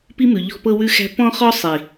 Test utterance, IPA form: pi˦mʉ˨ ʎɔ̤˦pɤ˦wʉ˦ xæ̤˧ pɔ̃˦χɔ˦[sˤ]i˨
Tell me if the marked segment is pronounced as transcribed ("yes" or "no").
yes